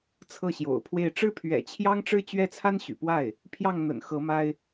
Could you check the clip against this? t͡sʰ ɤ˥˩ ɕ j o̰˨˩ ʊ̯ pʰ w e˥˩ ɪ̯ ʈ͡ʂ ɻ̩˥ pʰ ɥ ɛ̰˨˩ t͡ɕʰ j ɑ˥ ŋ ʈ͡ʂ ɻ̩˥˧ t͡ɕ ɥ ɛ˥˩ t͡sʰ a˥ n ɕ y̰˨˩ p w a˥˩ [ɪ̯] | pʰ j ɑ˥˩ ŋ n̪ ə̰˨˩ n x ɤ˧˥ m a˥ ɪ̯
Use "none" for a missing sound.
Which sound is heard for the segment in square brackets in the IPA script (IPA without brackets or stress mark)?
ɪ̯